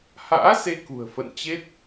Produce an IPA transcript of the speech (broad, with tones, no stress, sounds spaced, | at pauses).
h a̰ː˧˥ s e˧ k ṳ˨˩ ə̯ f ə̰˧˨ n t͡ɕ e˦˥ t̚